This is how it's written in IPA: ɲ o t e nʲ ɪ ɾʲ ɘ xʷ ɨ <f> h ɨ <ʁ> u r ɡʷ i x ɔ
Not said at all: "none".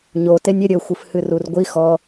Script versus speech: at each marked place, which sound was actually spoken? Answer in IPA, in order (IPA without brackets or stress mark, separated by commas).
f, r